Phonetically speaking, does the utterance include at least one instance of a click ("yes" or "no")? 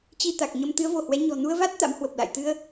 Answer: no